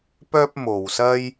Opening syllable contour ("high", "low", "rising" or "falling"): high